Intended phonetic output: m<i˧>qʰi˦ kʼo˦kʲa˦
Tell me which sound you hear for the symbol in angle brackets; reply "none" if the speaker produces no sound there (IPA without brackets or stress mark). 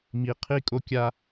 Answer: i˧